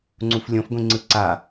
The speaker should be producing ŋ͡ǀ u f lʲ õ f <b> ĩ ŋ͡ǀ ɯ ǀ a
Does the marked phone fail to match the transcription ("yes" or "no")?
yes